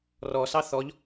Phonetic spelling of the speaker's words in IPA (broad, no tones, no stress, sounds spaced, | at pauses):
r ɔ s ɑ θ ɔ ʎ